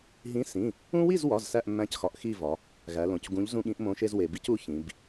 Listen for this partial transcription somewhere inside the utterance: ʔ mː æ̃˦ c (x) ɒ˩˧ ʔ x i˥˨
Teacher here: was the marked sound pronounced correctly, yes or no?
yes